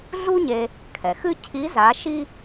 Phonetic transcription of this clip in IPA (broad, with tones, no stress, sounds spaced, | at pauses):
ɮ u˥ ɲ e˧ | kʰ ɛ˩ x ɨ˥ cʰ i˧˥ z a˧˥ ʃ i˥